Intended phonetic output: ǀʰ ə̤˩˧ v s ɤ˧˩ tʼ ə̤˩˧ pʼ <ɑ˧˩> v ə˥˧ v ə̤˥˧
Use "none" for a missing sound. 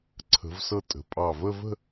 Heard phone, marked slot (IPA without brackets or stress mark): ɑ˧˩